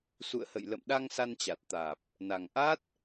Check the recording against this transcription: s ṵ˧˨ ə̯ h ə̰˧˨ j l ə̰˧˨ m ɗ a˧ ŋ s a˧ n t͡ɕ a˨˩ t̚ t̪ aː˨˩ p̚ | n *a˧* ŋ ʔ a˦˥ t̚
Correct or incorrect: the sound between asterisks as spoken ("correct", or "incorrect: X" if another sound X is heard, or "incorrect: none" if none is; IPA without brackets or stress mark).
incorrect: a˨˩